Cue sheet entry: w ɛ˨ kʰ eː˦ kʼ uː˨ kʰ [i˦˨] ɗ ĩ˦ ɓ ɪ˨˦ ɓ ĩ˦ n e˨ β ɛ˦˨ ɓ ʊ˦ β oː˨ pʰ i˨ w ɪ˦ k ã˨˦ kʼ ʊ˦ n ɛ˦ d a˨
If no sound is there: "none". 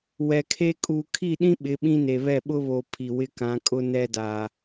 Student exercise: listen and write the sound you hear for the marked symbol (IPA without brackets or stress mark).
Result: i˦˨